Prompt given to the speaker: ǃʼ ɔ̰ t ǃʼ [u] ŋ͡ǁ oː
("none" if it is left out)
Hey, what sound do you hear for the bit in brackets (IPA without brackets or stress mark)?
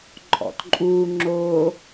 uː